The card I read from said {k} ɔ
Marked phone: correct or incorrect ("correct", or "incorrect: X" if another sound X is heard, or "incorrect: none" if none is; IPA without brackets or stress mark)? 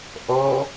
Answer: incorrect: ʔ